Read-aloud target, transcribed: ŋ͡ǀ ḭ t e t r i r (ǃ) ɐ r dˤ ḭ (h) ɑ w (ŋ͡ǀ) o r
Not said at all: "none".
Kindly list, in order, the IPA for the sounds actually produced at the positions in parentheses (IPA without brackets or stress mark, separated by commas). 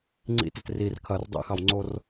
kʰ, x, ŋ͡ǀ